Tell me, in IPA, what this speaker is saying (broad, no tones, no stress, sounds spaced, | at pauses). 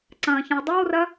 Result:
ǀ ɐ̃ː ç ɐ̃ w dˤ o w r ɐ